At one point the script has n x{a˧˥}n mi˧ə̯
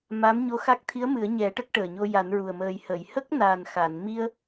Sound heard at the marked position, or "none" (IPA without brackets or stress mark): a˨˩˨